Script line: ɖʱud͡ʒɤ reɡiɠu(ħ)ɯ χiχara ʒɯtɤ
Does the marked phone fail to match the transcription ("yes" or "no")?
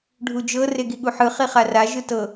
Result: no